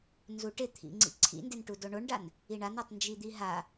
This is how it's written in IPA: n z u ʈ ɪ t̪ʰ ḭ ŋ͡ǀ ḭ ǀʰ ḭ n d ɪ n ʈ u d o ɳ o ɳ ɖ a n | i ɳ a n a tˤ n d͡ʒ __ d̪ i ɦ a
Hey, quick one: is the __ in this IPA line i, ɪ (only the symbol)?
i